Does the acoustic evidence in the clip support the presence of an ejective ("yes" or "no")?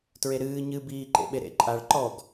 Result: yes